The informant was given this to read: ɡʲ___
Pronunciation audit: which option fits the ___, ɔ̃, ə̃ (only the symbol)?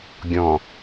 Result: ɔ̃